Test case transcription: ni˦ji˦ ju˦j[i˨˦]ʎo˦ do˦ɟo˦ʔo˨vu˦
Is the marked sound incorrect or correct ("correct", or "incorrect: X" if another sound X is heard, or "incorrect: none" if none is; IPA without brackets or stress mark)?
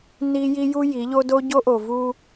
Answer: correct